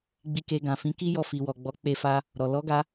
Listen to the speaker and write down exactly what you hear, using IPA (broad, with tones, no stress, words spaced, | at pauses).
ɡ͡bi˧ke˧ɡã˨fĩ˨˦ ki˦jɔ˧ fi˨wɔ˨ɡ͡bɔ˨˦ k͡pe˧fa˧ | ɾɔ˨ lɔ˨˦ɡa˧